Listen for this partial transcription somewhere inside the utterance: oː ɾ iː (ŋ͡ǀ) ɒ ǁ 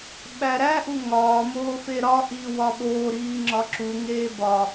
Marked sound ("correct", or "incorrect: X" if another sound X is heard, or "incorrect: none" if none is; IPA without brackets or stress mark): incorrect: ŋ͡ǁ